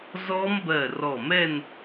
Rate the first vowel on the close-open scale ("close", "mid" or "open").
mid